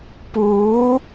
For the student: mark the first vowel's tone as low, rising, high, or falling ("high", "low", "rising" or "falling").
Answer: rising